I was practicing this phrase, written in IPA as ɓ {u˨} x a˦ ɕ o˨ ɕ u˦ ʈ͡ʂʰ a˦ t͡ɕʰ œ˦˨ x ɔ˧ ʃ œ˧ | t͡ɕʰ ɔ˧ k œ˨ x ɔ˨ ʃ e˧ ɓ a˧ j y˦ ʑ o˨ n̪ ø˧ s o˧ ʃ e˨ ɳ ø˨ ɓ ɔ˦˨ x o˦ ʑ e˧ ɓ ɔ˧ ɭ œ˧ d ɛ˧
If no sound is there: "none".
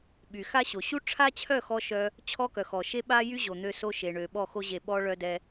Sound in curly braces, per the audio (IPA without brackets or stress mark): y˨